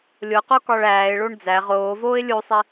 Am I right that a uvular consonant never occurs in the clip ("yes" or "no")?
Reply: no